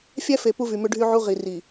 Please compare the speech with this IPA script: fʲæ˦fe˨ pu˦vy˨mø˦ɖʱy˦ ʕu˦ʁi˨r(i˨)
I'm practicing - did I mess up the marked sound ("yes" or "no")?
no